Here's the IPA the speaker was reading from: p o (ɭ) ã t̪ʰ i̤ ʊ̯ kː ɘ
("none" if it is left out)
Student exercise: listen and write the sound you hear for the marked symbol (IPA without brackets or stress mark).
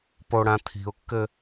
ɽ